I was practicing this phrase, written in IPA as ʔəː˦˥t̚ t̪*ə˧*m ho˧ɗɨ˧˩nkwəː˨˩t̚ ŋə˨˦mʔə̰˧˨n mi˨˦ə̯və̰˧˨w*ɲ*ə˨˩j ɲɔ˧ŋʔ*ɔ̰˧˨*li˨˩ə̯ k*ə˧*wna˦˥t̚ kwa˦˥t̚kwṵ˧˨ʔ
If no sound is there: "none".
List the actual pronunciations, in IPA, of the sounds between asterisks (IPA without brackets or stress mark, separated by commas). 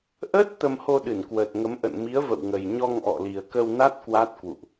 ə˧, ŋ, ɔ̰˧˨, ə˧